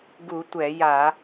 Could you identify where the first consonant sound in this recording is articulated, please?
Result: velar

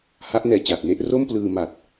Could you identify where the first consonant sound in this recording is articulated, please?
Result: glottal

